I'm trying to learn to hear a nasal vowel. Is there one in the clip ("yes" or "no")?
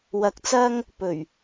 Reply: no